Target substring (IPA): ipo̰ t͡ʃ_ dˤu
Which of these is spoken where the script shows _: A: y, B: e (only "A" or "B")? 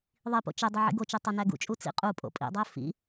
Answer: B